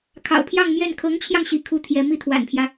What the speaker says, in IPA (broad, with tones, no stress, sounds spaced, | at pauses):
kʰ ɑ̰˨˩ ʊ̯ pʰ j ɑ˥˧ ŋ m j ɛ˥˩ n kʰ ɤ˧˥ ŋ t͡ɕʰ j ɑ˧ ŋ ɕ ḭ˨˩ kʰ u˥ t̪ʰ j ɛ˧˥ m i˥˩ t̪ʰ w a̰˨˩ n pʰ j ä˦